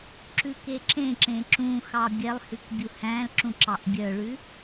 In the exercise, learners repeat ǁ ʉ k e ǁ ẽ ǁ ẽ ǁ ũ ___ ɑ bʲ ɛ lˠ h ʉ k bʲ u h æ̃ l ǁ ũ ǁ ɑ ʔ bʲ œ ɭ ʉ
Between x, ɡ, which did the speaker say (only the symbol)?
x